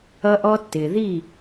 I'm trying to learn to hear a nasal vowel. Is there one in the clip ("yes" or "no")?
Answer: no